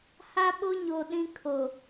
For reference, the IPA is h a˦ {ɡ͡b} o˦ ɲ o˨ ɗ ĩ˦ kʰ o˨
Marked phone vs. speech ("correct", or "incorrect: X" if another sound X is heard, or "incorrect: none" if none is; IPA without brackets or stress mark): incorrect: ɓ